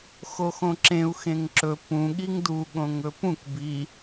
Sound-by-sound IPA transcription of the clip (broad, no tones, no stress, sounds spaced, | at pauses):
x o x õ ǁ ẽ u̯ x ẽ ŋ ǁ ɵ p ũ ɠ i ŋ d u ɠ õ ŋ ɵ p ũ k b i